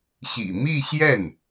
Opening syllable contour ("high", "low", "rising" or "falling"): low